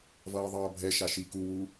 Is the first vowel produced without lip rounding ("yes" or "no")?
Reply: yes